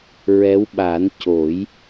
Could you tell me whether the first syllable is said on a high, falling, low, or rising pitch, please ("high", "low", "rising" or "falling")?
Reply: rising